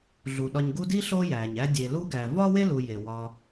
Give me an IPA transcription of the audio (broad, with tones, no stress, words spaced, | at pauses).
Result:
ɮu˩ɗɒ˨ɲɡu˦ di˥ɬo˦ jæ˩ɲæ˦ dʲe˨lu˥ ɡæ˨ vɒ˥we˥ lu˨je˩ wɒ˨